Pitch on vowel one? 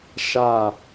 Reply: falling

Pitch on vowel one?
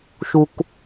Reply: low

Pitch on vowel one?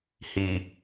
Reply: low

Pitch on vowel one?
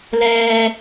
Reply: high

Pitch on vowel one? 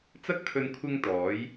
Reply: high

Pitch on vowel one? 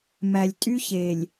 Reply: low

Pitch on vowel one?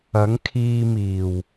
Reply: rising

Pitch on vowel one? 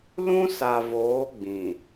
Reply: high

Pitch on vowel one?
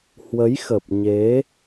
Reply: rising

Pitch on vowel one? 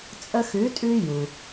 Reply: high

